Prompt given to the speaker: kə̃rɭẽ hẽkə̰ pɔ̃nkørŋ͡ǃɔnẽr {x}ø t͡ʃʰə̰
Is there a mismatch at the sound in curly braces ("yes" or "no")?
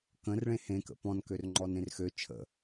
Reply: no